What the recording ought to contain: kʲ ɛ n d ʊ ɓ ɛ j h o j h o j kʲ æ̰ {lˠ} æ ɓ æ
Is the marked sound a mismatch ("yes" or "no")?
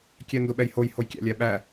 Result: yes